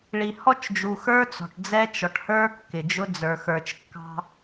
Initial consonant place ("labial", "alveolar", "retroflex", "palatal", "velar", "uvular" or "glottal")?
retroflex